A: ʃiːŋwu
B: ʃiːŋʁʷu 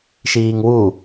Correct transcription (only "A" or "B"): A